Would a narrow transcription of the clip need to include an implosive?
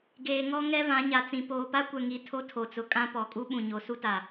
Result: yes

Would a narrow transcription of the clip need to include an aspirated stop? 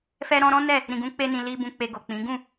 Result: no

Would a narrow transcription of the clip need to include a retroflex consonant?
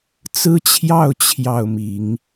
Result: no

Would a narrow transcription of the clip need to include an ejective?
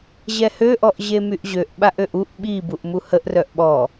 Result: no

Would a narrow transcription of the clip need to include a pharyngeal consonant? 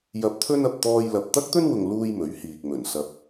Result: no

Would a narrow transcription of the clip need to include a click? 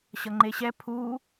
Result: yes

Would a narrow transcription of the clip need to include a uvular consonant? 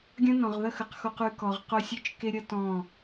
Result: yes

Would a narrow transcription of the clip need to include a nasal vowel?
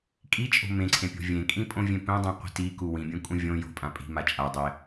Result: yes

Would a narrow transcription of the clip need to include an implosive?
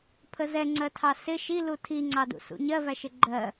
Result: no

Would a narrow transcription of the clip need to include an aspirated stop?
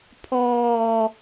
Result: yes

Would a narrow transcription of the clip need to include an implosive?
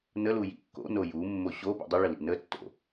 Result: no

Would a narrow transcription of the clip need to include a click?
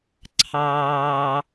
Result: yes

